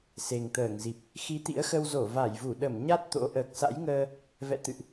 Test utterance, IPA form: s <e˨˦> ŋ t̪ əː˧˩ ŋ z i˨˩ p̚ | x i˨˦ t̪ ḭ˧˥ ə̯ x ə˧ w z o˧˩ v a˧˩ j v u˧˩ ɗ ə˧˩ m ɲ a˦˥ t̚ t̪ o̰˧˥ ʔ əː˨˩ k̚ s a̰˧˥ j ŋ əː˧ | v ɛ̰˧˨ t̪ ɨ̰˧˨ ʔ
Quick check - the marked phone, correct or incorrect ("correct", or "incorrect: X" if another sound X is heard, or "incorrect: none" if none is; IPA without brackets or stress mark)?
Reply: incorrect: e˨˩